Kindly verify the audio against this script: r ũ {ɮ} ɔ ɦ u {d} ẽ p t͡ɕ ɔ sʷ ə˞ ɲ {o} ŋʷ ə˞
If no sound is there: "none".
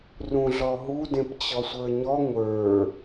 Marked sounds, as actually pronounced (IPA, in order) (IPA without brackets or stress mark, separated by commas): ɮ, d, ɔ